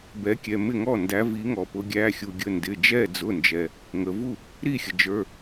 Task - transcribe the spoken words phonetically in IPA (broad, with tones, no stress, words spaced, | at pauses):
bɛ˨˦kʲɛ˩˧˩mɪ˥˩ŋɔ˥˩ ndæ˨˦vi˨˦ŋɔ˩pʊ˨˦ ɡʲæ˩˧˩xʲu˩ɡʲə˩˧˩ ndɪ˩˧˩d͡ʒɛ˥˩ d͡zʊ˩˧˩nd͡ʒɛ˩ | ŋə˩vu˥˩ | ɾi˥˩xʲə˩d͡ʒə˞˩˧˩